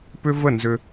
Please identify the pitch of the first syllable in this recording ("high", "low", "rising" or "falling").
high